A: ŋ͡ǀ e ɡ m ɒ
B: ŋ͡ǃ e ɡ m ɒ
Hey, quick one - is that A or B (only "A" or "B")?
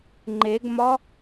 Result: B